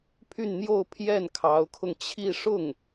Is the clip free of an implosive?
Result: yes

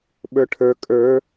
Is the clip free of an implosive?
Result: no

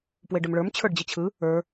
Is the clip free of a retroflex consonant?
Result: no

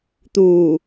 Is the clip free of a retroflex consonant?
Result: yes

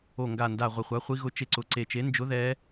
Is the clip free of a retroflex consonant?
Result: yes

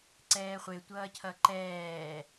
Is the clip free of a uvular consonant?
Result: no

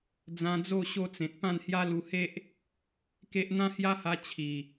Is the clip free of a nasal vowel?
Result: no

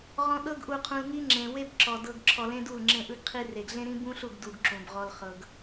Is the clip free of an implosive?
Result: no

